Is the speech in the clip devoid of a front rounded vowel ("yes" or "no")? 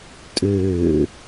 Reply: no